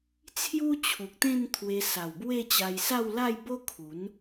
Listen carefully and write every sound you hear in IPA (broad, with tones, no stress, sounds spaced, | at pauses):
t͡sʰ j u˦ t͡ɕʰ u˨ k̚ t̪ ẽ˥˧ n t̪ʰ w e˧ s a˨˩ w b w e˥˧ t͡ɕ a˧ j s a˥˧ w l a˥˧ j b o˦ kʰ u˨˦ n